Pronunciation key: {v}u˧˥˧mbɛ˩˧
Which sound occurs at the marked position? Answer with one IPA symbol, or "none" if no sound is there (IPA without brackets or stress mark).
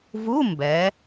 v